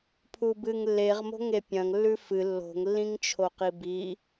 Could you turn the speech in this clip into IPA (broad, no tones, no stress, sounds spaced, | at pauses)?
pʰ u b ɨ ŋ lː e ʁ m o̤ ŋ e pʲ ɐ̃ ŋ lː ʉ f ɨ lː o̤ ŋ lː ĩ ŋ t͡ʃʰ o q i b i